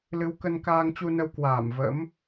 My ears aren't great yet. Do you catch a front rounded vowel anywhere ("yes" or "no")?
no